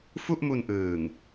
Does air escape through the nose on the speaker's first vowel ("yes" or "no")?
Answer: no